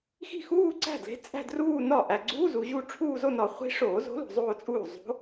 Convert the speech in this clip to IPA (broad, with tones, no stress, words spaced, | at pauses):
xi̤˥˩xuː˥˧ǀæ̤˥˩dle̤˧˥ t͡sʼæ̤˥˧druː˥˧nɒ˥˩ ʔæ˨ɡ͡ǀuː˧˥˧zu˨ʑu˥˩ ʈ͡ʂʰuː˥˧zo˥˧nɒ˨˩˦ χʷi̤˧˥ʂoː˨˩˦zo̤˧˥ lo̤˨zˤoː˥˧t͡sʼuː˥˩ zˤo̤˧˥